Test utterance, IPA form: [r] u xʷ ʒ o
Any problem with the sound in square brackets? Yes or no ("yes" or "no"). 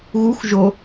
yes